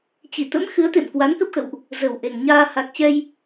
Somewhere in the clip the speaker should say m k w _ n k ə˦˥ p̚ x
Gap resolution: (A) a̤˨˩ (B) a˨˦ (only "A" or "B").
B